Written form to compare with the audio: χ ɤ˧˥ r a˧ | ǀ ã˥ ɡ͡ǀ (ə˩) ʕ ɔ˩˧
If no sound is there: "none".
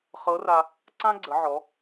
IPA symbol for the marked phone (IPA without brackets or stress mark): ə˩˧